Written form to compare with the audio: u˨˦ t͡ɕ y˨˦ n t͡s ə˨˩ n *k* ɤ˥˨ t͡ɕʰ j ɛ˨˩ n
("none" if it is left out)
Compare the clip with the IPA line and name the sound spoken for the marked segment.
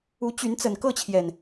k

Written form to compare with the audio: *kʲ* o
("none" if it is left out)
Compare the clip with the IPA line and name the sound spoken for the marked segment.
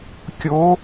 kʲ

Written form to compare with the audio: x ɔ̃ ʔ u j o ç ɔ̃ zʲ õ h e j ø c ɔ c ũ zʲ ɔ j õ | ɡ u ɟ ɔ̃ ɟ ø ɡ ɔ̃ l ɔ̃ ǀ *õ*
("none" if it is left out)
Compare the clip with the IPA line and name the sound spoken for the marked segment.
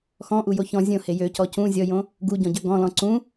ũ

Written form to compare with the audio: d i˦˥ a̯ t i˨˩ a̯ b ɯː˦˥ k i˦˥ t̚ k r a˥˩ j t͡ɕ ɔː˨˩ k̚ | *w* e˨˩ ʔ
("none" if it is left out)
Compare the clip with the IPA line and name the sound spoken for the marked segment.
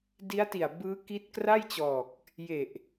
j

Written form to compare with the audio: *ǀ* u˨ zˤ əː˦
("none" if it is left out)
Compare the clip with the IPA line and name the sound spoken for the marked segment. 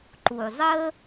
ǃ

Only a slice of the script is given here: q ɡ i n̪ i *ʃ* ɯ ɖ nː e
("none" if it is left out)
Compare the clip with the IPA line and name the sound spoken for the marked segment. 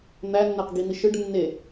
ʃ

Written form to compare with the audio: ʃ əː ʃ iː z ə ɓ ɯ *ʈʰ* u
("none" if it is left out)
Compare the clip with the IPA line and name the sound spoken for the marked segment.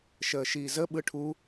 ʈʰ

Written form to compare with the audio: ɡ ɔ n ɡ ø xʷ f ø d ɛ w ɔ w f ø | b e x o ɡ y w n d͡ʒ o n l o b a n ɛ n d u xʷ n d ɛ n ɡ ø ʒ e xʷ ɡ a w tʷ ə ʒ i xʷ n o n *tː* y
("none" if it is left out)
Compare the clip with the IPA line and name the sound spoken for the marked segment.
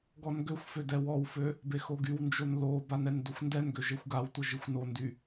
d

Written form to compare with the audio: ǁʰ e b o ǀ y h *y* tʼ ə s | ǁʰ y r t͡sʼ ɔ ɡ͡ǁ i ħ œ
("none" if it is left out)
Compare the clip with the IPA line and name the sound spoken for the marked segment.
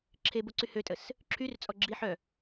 ø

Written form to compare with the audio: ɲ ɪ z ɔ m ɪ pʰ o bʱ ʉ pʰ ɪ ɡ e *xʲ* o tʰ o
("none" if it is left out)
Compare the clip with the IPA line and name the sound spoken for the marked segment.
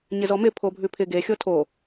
xʲ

